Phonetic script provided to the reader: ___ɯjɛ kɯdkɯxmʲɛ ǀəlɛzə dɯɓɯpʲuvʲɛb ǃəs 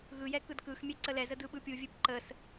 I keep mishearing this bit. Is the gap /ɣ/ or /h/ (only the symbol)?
ɣ